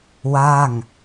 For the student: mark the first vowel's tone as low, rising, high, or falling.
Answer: falling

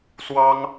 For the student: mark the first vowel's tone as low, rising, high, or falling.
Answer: high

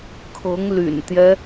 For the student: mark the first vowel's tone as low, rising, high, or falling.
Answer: rising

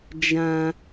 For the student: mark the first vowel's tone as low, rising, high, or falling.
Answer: low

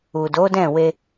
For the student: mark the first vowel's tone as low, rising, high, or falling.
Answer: low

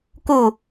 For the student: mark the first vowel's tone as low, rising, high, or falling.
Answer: falling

